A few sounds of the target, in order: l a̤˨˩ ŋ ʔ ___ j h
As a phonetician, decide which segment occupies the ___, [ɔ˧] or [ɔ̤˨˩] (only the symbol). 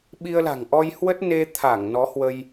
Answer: ɔ˧